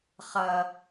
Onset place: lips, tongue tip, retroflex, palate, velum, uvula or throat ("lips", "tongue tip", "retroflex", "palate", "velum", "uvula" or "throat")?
uvula